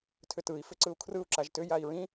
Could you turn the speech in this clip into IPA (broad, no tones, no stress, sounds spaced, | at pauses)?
tʰ ʏ t ɯ i̯ f ʏ ǀ ɯ u̯ kʰ r ɯ u̯ ǁ a ʒ t ʏ j a i̯ ɹ ĩ